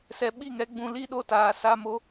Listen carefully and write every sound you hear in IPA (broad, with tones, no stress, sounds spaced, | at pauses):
s ɛ˧ ɓ i˦˨ ŋ ɛ˨˦ ɡ͡b ũ˧ l i˦ ɗ o˦ t aː˨ s a˦ m o˦